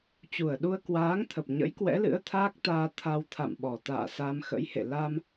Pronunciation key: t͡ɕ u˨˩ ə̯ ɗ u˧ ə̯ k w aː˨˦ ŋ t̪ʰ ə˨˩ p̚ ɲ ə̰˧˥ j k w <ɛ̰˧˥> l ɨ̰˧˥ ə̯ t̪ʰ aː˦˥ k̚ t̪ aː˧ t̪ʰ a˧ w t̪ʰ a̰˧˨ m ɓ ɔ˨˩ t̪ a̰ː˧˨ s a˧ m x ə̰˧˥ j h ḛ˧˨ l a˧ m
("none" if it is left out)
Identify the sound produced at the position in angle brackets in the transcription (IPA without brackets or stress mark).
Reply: ɛ̰˧˥